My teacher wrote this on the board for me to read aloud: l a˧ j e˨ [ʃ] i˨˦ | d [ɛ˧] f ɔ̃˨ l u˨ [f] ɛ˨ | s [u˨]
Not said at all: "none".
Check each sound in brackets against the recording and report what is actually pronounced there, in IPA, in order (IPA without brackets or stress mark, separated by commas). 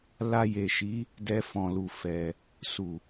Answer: ʃ, ɛ˧, f, u˨